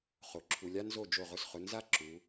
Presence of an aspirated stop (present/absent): present